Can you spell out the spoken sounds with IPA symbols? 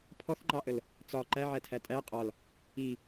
pʰ ɔ θ ŋ͡ǃ ɑ ʔ ə l | t͡s ɒ ǃ æ ʕ æ tʰ æ tʼ æ qʼ ɒ l | i

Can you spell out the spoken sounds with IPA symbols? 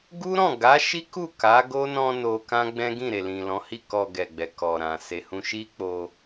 ɡ u˦ ɾ ɔ̃˦˨ ɡ a˨˦ ʃ i˦ k u˦˨ k a˨˦ ɡ o˦ n ɔ̃˧ n o˧ k ã˦ ɡ͡b ɛ̃˦ ɡ ĩ˦˨ ɾ e˨ l ĩ˨ l ɔ̃˨˦ h i˦˨ k ɔ˨ ɡ ɛ˨ ɡ͡b ɛ˨ k ɔ˨ ɾ ã˨ s e˨ h ũ˧ ʃ i˦ k͡p o˧

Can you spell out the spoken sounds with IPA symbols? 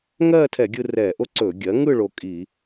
ŋ ɜː˥˧ tʰ ɛ˧˩˧ ɡʲ ɯ˧ r ɛː˧˩˧ ʔ o˥ ǀ ɵː˧˩˧ ɡʲ ɜ˩˥ ŋ ɯ˥˧ ɭ o˧ kʼ i˧˩˧

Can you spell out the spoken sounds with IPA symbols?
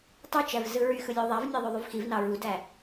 tˤ o t͡ʃ æ v z ɯ ɹ y x ɯ lʲ o ðˤ æ v nʲ æ ðˤ ø ðˤ y v x i v n ɑ ɹ u d æ

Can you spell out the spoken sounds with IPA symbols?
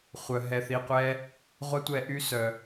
χʷ œ˧ ɦ ɛ˧ θ i˧ qʷ ɛ˦ | ʁʷ a˦ tʷ ɛ˧ ʔ y˦ s œ˧

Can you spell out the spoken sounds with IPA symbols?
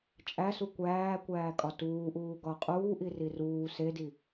t͡ʃʼ æ s u kʷ æː kʷ æː kʼ ɒ t uː ʔ uː ɡ ɒ qʼ uː ʔ i r i r uː s e d i

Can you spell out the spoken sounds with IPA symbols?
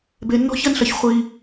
b e˦ nː ɔ̤˥ ç ɐ˥ n ɬ ɐ˦ ç χʷ i˥

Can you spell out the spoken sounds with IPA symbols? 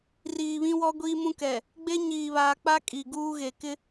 r iː˨ β ĩ˦ w ɔ˦ ɡʷ iː˦ m ũ˦ k ɛ˨ | ɡ͡b e˦ ɲ iː˨ β aː˨ k͡p a˦ kʼ i˨ ɡ uː˦ ɣ e˨ k ɪ˦

